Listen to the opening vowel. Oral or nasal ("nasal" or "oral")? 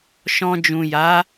nasal